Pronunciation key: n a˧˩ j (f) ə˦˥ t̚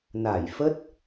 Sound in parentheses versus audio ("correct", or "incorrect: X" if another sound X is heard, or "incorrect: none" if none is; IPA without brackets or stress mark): correct